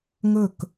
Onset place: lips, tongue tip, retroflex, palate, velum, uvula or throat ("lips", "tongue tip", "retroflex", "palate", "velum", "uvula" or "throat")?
velum